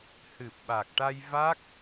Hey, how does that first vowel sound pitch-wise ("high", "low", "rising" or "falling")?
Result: low